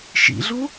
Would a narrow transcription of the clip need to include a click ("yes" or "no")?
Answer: no